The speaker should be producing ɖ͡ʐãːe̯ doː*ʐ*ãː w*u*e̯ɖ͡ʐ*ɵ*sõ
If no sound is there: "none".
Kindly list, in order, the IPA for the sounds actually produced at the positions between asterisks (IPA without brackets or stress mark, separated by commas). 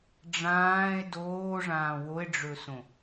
ʐ, o, ɵ